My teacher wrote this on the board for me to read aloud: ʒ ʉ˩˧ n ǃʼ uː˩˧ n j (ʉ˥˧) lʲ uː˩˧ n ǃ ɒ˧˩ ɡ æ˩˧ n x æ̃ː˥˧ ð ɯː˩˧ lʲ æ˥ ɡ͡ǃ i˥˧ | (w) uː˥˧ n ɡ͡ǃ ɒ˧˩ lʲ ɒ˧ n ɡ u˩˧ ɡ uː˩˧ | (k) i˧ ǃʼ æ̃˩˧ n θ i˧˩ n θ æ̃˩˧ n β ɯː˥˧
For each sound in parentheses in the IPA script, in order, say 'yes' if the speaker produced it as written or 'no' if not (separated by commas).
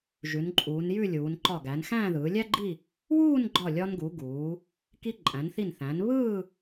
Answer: yes, yes, yes